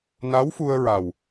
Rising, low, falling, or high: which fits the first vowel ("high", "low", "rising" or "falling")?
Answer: rising